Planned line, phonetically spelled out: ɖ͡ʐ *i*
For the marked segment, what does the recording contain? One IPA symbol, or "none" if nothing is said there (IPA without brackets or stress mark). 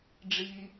i